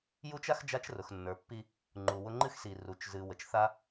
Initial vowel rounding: rounded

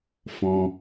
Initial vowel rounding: rounded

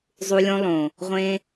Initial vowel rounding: rounded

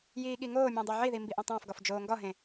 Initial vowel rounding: unrounded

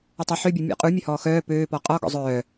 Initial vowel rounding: unrounded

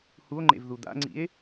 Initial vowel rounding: rounded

